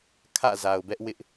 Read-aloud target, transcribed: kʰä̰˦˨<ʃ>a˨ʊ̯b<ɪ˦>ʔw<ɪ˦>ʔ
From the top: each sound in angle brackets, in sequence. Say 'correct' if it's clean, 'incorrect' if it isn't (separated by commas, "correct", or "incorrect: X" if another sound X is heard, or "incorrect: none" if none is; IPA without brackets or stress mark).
incorrect: z, incorrect: ɛ˦, correct